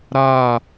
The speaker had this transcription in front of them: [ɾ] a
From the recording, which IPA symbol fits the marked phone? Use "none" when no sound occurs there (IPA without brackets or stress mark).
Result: ɾ